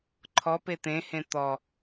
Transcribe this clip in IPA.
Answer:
ǃʰɔpe t̪ẽhẽ t̪ɔ

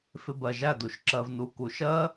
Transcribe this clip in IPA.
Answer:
fɪ˧bɜ˨ʒæ˦˨du˨ʃ ǁɜ˨vnu˨ ku˨ʃɜ˦

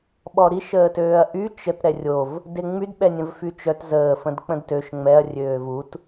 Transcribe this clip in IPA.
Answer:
ɓɔɾiʃ əːtøːɐ̯ʔy t͡ʃət ɾɛrʲov | deŋ͡myd ɓɛnʲə̃vfyt͡ʃœt zəː fə̃dk͡pə̃dtøʃ ŋ͡mɛɐ̯ rʲøːvut

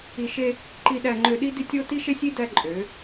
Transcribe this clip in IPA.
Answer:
i˨ʃe˦ | ǃi˨ɗæ˨ŋ͡ǃø˨ɗi˦ di˦tʲo˦ ti˦ʃe˦sʲi˦ dæ˦ǃʼø˨˦

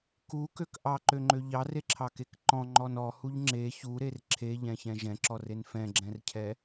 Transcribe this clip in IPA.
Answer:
kukøk ʔɑǃøŋ͡ǃø ʎɑreǁʰɑkek ǃɔ̃ŋ͡ǃɔn ɔhuʎ ŋ͡ǁe çuɾer ǁʰeʎɛ̃çɛ̃ ʒɛ̃ǁɔren fɛ̃ɡ͡ǁɛ̃rcʰɛ

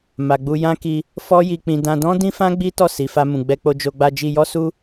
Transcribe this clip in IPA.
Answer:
ma˨ɡ͡bu˧ jã˦ki˧ | fɔ˦ji˧k͡pĩ˧ dã˧dɔ̃˦dĩ˦fã˦ ɡ͡bi˦tɔ˦˨ si˨fa˧mũ˨ ɡ͡bɛ˧k͡po˧d͡ʒo˧ ɡ͡ba˧ d͡ʒi˧jɔ˦ su˦

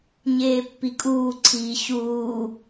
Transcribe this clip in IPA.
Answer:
ɲeːpːikʼuːǀʰiː ɕuː

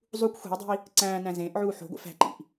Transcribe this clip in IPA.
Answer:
zˤukʷ xʷe̤i̯dˤe̤i̯ | ǀæ̃ːnæ̃ zẽːʔʕuː ħo̤ɡʷḛf æ̤ǃḭʔ

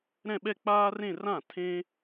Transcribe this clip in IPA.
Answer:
ɾɛ̃˥˧ɓɛ˥˧k͡paː˥rẽ˥˧ rã˥˩ tʰẽ˥

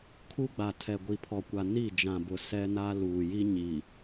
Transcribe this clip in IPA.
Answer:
kʰu˦ɡ͡ba˨ tʰɛ˨ɡʷi˨pʰɔ˨kʷa˨ ni˦˨d͡ʒã˨bʊ˨ sɛ˦na˦ luː˨ji˦ ɲi˨

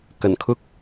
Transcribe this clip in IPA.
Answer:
kɐ˨˩nkʰʊ˥k̚

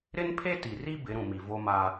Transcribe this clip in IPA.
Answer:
ɾɪ˦npʰe˦ti˨ri˦ bɪ˨˦ɾũ˨mi˨ vo˦ma˦

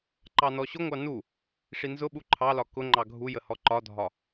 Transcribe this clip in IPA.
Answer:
ǃɑnɔɕʊŋʷɑ nu | ʂinzʊɓu ǃʰɑlɒ kʊŋ͡ǃɑ ɡʱujə hɔǃɒdʱɒ

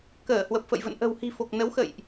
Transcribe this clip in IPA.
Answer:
kəː˧˩hwə˨˩p̚fə̰˧˨jvə̰˧˨n ʔə̤˨˩whi̤˨˩fo˨˩k̚ nə˨˦w xə̰˧˨jʔ

